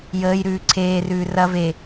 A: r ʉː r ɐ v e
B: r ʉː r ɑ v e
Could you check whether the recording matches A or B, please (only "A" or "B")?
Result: A